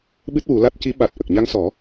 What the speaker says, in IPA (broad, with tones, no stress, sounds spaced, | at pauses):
ɓ ɨ˦˥ t̚ w u˨˩˦ l a˦˥ t̚ c i˧˥ ɓ a˨˩ t̚ ʔ ə˨˩ k̚ ɲ a˧ ŋ s ɔ˨˩˦